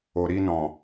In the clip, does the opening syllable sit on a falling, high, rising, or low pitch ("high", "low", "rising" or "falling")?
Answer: low